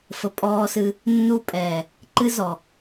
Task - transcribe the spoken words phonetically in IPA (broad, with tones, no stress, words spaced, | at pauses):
fə˨pʼɔː˦sɨ˦ | nːu˦pʼɛː˨ | ǃɨ˦zɔ˨